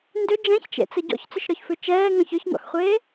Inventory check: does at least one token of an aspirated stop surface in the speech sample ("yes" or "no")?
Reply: no